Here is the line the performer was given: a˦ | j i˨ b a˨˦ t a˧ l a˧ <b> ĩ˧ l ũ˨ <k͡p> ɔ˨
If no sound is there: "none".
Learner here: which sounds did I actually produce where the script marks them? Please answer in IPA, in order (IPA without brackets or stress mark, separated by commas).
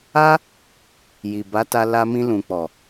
m, k͡p